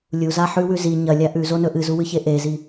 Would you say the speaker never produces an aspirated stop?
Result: yes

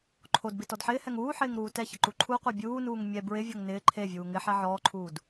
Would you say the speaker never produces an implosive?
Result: yes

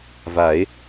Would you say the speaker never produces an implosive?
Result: yes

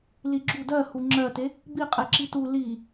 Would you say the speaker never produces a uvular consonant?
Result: no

